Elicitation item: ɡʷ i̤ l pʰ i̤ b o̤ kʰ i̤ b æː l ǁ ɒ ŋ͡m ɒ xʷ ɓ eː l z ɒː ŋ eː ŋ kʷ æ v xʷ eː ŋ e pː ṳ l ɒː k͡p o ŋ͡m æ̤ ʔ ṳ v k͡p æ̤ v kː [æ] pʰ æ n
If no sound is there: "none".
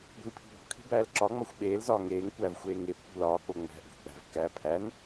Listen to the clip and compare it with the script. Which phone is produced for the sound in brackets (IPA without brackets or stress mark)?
æː